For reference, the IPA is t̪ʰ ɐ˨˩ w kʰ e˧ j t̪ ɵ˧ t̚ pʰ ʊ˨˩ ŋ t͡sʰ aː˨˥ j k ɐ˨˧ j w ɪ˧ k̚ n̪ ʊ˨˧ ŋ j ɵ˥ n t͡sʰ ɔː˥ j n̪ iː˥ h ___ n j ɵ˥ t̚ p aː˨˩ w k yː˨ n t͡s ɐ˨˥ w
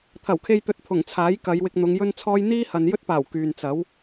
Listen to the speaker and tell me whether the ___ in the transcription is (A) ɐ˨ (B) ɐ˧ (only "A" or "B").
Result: A